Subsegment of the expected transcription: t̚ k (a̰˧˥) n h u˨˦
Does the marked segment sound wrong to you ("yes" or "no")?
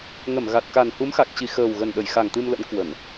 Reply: yes